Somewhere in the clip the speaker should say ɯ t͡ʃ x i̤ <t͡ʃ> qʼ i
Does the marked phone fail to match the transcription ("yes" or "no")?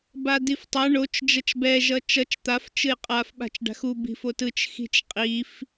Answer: no